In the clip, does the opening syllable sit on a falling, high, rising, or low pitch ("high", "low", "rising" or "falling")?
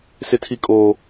high